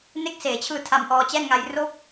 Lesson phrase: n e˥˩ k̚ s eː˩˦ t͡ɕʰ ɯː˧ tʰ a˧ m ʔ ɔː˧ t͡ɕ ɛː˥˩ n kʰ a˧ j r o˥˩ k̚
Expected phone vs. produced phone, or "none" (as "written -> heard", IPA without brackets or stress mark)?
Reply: kʰ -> ŋ